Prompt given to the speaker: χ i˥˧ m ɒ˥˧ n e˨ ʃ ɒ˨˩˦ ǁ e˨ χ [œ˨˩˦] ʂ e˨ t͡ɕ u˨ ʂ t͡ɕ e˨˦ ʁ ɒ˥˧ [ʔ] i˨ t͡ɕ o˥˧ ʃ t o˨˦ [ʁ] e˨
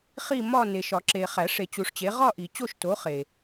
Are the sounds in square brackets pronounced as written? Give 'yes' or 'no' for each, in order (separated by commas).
no, yes, no